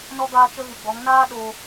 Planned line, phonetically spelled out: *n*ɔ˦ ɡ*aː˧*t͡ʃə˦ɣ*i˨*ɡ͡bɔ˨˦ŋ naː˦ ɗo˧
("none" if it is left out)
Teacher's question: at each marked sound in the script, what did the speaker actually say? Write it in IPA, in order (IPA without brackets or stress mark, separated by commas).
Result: n, aː˦, ɨ˨